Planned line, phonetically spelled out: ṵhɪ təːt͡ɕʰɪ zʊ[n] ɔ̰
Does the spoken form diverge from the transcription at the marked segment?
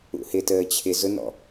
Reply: no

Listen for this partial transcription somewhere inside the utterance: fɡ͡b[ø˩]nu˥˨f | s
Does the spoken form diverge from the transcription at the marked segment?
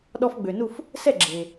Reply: no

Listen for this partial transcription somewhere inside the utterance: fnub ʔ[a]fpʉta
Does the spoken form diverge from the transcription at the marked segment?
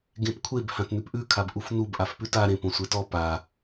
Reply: no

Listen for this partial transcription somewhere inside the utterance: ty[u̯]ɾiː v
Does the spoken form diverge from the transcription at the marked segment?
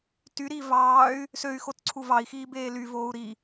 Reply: yes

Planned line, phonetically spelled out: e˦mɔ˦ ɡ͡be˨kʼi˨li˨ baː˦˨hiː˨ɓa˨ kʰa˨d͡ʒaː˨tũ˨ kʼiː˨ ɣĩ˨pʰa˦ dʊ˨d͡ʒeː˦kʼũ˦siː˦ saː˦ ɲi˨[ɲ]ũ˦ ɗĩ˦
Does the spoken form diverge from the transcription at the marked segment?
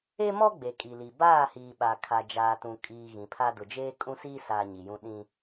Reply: yes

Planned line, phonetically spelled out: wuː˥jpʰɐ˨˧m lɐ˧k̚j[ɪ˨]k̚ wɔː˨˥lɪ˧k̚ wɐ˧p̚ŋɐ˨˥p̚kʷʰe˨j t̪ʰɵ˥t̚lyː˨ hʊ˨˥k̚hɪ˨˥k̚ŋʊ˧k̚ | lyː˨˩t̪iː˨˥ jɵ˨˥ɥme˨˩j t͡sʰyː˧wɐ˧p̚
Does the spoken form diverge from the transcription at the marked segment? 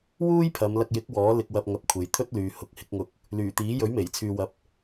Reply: yes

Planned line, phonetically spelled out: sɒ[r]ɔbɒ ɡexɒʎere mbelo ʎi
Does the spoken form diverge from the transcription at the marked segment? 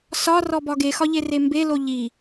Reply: no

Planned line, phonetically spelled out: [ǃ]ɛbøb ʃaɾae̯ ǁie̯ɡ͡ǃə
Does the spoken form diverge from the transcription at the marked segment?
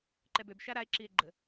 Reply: no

